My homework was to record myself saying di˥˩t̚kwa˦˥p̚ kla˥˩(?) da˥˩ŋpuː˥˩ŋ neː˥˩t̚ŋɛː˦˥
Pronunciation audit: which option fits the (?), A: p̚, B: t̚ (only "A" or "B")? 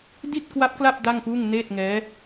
A